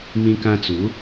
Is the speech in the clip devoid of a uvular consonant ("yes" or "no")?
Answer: yes